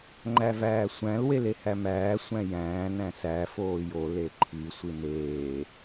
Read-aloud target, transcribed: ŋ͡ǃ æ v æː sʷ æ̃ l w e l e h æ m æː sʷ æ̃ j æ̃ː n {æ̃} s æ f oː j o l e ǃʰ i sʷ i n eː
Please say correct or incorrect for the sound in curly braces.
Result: correct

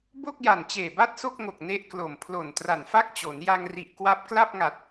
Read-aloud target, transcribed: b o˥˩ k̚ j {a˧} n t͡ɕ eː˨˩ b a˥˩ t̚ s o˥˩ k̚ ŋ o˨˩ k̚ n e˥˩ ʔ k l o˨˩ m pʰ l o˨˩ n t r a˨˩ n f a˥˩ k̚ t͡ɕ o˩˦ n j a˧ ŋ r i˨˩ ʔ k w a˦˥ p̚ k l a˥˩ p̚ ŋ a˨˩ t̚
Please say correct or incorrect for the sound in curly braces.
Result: incorrect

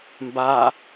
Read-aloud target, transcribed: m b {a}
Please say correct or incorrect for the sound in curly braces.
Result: correct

